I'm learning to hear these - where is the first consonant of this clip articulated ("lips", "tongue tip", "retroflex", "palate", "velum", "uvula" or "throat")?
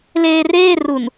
tongue tip